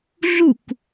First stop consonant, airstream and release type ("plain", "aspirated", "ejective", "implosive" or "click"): plain